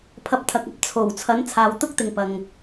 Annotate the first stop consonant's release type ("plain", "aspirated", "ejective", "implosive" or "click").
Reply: aspirated